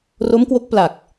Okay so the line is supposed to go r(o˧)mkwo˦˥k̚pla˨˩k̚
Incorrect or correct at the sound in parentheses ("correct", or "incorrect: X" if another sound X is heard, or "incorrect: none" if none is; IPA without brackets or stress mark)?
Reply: incorrect: o˦˥